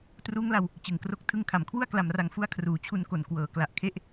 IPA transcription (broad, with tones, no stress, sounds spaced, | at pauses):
t r uː˦˥ ŋ l a˧ w | t͡ɕ ɯ˨˩ ŋ k r o˦˥ k̚ tʰ ɯ˧ ŋ kʰ a˨˩ m kʰ w u˥˩ a̯ k l a˨˩ m r a˨˩ ŋ f u˧ a̯ kʰ r uː˩˦ t͡ɕʰ u˧ n k o˨˩ n k w ɤː˩˦ k l a˨˩ ʔ kʰ e˥˩ ʔ